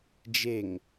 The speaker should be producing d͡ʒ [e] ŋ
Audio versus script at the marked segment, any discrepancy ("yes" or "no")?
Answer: no